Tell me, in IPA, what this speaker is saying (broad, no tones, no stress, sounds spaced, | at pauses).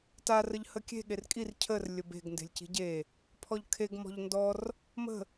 t a r ə ʎ h ə kʲ e̤ ɠ e r kʼ i r cʰ ə r lʲ ə b e̤ ɡ n d e̤ lʲ c i̤ ɟ e | pʰ ɔ ʎ kʰ e ɡ m ɔ̤ ʎ n d ɔ r | m ə̤